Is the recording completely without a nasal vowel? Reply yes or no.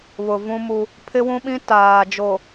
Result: no